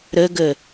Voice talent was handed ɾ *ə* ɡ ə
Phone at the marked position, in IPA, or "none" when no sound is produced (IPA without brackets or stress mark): ə